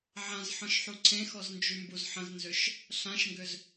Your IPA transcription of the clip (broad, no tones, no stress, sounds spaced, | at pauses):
ʕ ã z ħ ɔ̃ ʃ ħ u ǀʰ ẽ x ɔ z n d͡ʒ y m b u z ħ ə̃ z n z ʏ ʃ | ɬ ã ʃ ŋ ɡ ʏ z